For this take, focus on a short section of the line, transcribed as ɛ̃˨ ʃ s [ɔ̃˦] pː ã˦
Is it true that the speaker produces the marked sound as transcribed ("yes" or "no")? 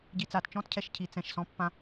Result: yes